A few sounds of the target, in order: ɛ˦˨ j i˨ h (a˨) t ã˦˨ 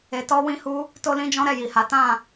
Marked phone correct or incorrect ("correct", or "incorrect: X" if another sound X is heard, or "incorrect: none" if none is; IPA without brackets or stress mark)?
incorrect: a˨˦